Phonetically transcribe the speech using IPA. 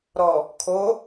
ɾ ɔ | kʰ o

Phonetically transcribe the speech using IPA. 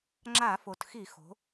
ŋ͡ǁ a˧˩˧ f o˩ t x i˧˩˧ x o̤˩˧

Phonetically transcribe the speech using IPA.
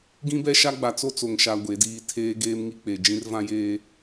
ɡ ĩ˦ b ɛ˦ ʃ a˦ ɡ͡b a˨ t͡s o˦ t͡s o˨ ŋ ʃ a˨ ɡʷ e˨˦ d iː˦ tʰ eː˦ ɡ eː˦ m ŋ i˦ k͡p e˨ d͡ʒ ĩ˦ r v ã˦ j eː˦

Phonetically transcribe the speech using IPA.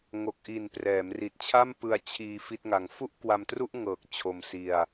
ŋ o˨˩ k̚ ʔ i˨˩ n p r ɛː˩˦ m r i˨˩ t̚ t͡ɕʰ a˥˩ m p ɯ˧ a̯ t͡ɕʰ iː˧ f i˥˩ t̚ ŋ a˧ ŋ f u˥˩ ʔ k w a˧ m t r u˥˩ ʔ ŋ ɤː˨˩ k̚ t͡ɕʰ o˧ m s i˧ a̯

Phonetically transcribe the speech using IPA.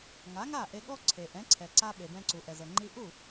ŋ a˩˥ ŋ a˥˩ ʔ e˧ ɠ ɔ˥ ǀʰ e˩ ʔ ɛ̃˩˥ ǀʰ ɛ˩ ǀ a˧ ɓ e˩ b ɛ̃˧ ǀ u˩ ʔ ɛ˩ z ɤ˩ ŋ͡ǃ i˧ ʔ u˥˩

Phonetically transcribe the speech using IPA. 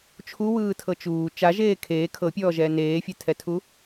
t͡ʃʰ u w ɯː tʰ ɤ t͡ʃ uː t͡ʃ a ʒ eː kʰ eː kʰ ɤ pʲ ɔː ʒ ɛː n eː fʲ ɛ tʰ ɛ tʰ u

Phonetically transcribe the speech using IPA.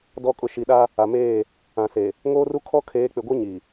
d ɔ˨ kʼ ʊ˨ ʃ i˨ ɗ a˦ | a˨ m eː˦˨ | ã˨ s e˨ | ŋ oː˦ r u˦ kʰ ɔ˦ kʰ eː˨˦ k͡p ɪ˨ ɡʷ i˦ ɲ i˨

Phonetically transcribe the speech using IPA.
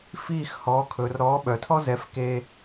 f iː˥˩ x h ɔː˩˥ kʰ ɵː˩ r ɾ ɔː˩˥ ɓ œ˩ tʰ ɔ˥ z ɛ˩˥ f k e˧

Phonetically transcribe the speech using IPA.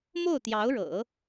m o˥˩ ʊ̯ t̪ j ɑ˧˥ ʊ̯ ɻ ɤ̰˨˩˦

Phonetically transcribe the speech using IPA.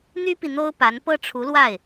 n̪ y˥ p i˨ n̪ o˥ ʊ̯ p a˧˥ n p ɤ˥˩ ʈ͡ʂʰ u˧˥ l w a˥˩ ɪ̯

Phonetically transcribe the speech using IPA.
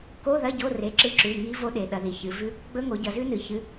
k o˧˥˧ ð ɐ˧˥˧ ɟ o˧˥˧ r e˩˧˩ ǁ ɨ˧˥˧ ǁ ʉ˩˧˩ ŋ i˦˥ v o˦˥ ɗ e˩˧ ɗ ɐ˩˧ ð i˩˧ ç ɨ˩˧ v ʉ˦˥ | ɡ͡b ɵ˦˥ ŋ o˩˧ ɟ ɐ˩˧ z ʉ˦˥ n ɨ˩˧ ç ɨ˩˧˩

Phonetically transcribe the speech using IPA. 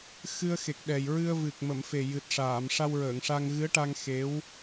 x ɨ˧ ə̯ x e˨˩ k̚ ɗ ɛ˨˩ j ɹ ɨ˧ ə̯ v ɨ˨˩ k̚ m ə˨˩˨ m f e˨˩ j ɨ˨˩ t̚ ʂ aː˨˩˨ m ʂ a˧ w ɹ əː˨˩˨ ŋ ʂ a˧ ŋ ɣ ɨ˧˥ ə̯ ʈ a˧ ŋ x e˧˥ w

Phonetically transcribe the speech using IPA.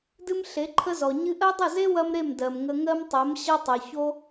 d ɨ˦ m ɬ e˨˦ ǃʰ ə˦ z ɔ˨ ɲ ɨ˧ ʔ ɜ˦ dˤ ə˦˨ z e˦ w ɐ˦ m ɾ e˦˨ m d ɜ˨ m ŋ ə˧ ŋ ɜ˦ m tˤ ɜ˨˦ m ɕ ʌ˦ tˤ ɜ˨ ç o˦

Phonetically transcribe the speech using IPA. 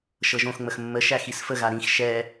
ʃ ɤ ʒ õ x ŋ͡m ə x mː ə ʃ æ x i s f ə ɣ a ɾ ĩ x ʃ ɛ

